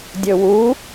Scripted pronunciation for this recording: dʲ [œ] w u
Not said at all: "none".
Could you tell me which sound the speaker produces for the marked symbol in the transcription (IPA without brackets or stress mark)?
ɵ